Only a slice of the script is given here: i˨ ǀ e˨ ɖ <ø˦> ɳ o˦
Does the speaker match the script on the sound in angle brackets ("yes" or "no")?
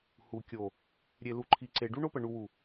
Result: no